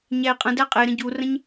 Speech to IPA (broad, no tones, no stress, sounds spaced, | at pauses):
ɲ æ i̯ qʼ ə̃ d æ qʼ e ɾ ə̃ ɟ u r ə̃ ɲ